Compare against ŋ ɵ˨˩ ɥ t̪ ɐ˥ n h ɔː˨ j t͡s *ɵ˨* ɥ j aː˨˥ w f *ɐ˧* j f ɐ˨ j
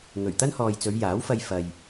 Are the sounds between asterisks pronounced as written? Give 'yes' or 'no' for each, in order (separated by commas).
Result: no, yes